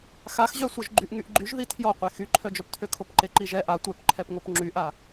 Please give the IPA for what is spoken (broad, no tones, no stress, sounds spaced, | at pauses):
x a x ʑ œ sʷ œ ʒ ɡ͡ǃ y ʔ ŋ y ʔ ɡ͡ǃ y ʒ ð i tʰ j ɔ qʷ e x y ǃʰ œ d͡ʒ œ p tʰ ø kʰ o p ǃ e ǃ i ʒ ɛ ʔ a tʷ œ p ǃʰ ɛ p ŋ o p ŋ͡ǁ y ʔ a